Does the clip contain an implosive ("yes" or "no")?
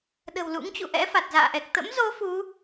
yes